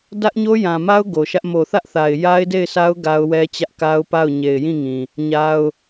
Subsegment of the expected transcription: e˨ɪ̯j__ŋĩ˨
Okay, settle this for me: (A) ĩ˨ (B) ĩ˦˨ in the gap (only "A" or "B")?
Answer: B